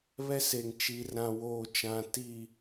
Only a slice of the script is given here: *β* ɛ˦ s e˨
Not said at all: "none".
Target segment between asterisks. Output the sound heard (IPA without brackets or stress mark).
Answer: β